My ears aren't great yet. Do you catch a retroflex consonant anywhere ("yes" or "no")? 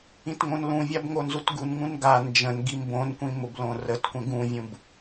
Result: no